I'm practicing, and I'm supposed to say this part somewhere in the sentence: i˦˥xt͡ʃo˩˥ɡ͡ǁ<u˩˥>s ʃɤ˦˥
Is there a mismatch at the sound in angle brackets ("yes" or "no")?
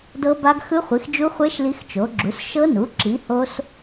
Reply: no